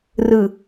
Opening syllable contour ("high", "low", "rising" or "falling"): low